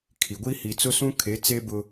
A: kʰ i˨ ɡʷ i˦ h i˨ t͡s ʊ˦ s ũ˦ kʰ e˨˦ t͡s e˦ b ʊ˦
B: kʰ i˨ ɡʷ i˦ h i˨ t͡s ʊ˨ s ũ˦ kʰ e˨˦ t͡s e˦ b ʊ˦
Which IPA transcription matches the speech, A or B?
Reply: A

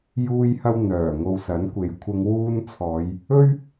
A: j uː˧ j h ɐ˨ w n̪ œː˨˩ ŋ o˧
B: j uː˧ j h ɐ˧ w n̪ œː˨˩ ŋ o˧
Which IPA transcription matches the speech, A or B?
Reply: B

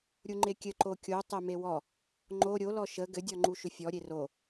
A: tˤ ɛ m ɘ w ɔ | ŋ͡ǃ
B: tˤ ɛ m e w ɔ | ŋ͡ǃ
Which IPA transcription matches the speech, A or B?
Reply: B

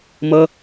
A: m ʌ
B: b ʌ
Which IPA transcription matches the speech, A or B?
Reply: A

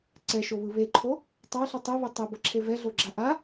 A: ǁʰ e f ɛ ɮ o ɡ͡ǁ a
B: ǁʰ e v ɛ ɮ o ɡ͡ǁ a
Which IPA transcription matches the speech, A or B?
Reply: B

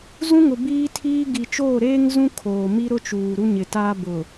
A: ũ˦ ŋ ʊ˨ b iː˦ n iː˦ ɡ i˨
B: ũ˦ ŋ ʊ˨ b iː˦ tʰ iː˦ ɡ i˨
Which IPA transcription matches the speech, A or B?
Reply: B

